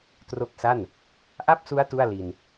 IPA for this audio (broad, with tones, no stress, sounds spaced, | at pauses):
t r o˦˥ k̚ s a˥˩ n | ʔ a˥˩ p̚ s u˦˥ a̯ t u˥˩ a̯ l i˧ n